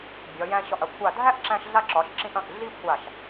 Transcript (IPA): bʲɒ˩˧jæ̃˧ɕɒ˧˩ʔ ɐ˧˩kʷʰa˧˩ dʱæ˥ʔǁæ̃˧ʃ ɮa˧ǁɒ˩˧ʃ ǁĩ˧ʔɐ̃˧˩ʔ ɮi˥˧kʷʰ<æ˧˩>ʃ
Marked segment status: incorrect: a˧˩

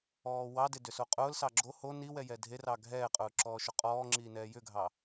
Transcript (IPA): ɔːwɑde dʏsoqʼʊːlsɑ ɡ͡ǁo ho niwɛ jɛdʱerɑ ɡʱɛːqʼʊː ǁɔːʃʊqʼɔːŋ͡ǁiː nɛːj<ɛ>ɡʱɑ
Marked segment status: incorrect: ʏ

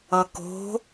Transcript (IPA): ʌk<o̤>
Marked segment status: correct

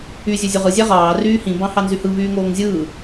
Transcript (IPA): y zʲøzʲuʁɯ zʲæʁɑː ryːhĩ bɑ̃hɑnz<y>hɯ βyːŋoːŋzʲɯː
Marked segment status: correct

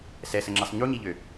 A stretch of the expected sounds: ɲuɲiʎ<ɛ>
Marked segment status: incorrect: ø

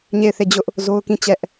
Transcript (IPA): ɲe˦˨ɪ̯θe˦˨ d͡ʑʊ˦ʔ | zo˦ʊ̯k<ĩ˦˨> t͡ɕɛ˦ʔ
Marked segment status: correct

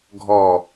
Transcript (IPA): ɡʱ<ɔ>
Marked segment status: correct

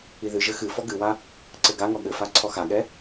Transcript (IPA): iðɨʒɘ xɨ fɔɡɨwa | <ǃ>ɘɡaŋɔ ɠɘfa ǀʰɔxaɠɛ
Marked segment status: incorrect: ǀ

